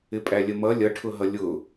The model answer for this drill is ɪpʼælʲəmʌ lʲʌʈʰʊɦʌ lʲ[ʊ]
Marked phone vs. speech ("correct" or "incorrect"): correct